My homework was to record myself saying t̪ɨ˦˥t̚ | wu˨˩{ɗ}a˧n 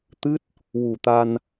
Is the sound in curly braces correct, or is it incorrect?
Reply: incorrect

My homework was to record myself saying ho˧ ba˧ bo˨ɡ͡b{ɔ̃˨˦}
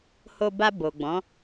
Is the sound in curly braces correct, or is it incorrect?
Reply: correct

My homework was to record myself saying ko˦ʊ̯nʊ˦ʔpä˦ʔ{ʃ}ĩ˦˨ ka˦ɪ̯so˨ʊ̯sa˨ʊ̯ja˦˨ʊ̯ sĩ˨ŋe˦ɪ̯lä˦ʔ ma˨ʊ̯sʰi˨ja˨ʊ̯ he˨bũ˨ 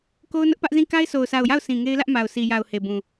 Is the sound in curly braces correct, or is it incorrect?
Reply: incorrect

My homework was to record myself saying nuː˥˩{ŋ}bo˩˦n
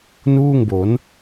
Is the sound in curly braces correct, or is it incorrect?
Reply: correct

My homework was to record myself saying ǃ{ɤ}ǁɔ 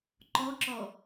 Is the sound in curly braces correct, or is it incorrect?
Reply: incorrect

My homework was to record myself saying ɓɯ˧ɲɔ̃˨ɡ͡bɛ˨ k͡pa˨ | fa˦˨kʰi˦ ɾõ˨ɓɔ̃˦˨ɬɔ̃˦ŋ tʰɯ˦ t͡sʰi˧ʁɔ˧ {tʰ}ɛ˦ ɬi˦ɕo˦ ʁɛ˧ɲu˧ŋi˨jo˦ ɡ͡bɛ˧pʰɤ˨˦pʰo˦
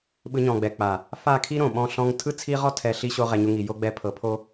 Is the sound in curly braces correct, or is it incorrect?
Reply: correct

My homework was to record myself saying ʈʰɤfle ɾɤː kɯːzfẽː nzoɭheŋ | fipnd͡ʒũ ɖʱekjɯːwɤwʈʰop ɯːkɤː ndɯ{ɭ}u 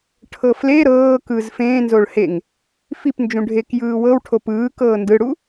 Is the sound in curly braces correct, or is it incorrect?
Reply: incorrect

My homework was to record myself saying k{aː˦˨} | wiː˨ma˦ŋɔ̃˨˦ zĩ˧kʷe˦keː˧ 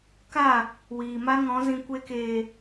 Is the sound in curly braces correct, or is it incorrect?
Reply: incorrect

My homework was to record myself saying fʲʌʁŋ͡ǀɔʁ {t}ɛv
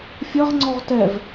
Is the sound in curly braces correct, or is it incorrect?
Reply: correct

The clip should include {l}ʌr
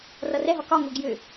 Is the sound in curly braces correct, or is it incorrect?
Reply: incorrect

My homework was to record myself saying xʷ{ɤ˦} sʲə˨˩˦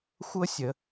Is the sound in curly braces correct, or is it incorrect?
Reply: correct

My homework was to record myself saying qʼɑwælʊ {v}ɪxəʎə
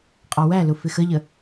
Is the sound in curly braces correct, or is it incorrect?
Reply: incorrect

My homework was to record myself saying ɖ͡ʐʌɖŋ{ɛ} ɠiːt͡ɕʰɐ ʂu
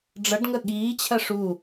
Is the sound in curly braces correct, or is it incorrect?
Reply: incorrect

